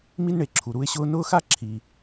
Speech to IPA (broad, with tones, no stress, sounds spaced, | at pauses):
m i˥ n ɳ e˩ ǁʰ u˩ ɾ u˥ ɪ̯ ɕ ʊː˥ n ʊː˥ x a˥ ǁʰ i˩